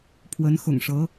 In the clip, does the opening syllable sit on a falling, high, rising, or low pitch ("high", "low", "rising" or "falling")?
rising